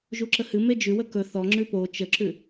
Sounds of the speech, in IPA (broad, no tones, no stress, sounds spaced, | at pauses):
ʒ u ǁ ə h ɨ m e d͡ʒ ʉ w ə k ɵ θ ɔ ŋ͡ǁ ʉ p o t͡ʃ ə ǁ ʉ